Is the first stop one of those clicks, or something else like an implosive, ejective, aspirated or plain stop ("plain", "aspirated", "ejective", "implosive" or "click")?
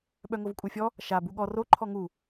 implosive